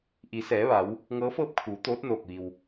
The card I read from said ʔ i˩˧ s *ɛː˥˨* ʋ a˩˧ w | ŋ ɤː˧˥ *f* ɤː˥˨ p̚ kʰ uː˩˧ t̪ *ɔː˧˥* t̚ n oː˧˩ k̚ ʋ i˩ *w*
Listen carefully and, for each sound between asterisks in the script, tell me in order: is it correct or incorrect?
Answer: incorrect, correct, incorrect, correct

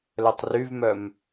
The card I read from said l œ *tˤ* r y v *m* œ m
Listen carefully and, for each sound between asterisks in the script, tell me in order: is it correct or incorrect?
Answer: correct, correct

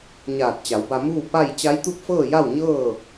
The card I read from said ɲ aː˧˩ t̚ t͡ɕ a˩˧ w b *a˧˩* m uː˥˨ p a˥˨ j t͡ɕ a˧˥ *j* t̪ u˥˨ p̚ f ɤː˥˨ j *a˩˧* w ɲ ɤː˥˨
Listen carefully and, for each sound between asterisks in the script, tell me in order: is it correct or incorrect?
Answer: incorrect, correct, incorrect

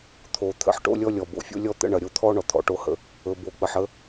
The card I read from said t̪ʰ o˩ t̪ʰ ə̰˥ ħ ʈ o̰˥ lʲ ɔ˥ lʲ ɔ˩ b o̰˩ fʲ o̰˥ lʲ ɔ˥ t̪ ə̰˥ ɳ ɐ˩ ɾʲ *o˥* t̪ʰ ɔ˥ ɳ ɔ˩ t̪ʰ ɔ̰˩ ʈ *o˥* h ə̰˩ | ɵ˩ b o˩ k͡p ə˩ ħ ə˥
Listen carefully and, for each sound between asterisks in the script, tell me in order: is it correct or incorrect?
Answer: correct, correct

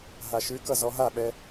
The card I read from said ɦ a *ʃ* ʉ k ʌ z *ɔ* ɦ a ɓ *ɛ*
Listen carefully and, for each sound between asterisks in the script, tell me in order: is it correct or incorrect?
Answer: correct, correct, correct

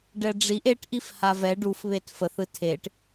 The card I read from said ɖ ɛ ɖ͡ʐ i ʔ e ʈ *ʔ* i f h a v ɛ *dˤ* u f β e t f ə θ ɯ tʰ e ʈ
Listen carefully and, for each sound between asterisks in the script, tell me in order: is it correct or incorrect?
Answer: correct, incorrect

